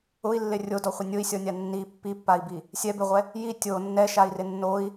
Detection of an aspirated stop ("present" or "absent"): absent